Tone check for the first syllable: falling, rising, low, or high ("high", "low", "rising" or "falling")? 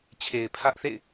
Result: low